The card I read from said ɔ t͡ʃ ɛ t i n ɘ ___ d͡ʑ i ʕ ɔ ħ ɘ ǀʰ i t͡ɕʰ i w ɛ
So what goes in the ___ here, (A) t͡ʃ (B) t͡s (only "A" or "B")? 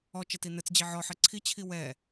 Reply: B